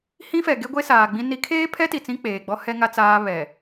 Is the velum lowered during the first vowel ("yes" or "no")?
yes